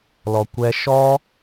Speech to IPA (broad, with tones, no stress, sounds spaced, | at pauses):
l ɔ˨ kʷ ɛ˦ ʃ ɔ˦